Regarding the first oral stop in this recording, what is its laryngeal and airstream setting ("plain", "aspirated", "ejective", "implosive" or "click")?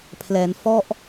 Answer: aspirated